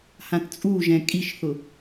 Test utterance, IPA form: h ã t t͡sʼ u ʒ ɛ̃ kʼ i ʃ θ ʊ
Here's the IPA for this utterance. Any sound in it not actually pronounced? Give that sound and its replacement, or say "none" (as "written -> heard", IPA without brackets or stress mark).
none